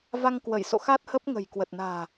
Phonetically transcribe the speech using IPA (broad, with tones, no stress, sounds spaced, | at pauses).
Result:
v a˧ ŋ k w ə˧˩ j s o̰˧˨ x a˦˥ t̚ h ə˦˥ p̚ ŋ ə̤˨˩ j k w ə˨˩ t̚ n a̤ː˨˩